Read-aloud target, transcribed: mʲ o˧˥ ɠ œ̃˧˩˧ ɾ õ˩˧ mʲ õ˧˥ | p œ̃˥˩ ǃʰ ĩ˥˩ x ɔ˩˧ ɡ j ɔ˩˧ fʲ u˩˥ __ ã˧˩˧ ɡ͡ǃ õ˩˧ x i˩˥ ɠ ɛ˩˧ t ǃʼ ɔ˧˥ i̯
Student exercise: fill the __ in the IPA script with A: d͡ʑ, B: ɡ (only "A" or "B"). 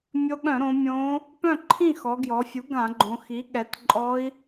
B